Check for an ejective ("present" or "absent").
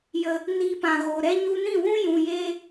absent